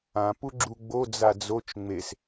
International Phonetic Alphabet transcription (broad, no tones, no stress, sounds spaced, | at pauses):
ã p u ɡ͡ǁ u ɡ͡b o d͡z a d͡z o t͡ʃ ŋ͡m e s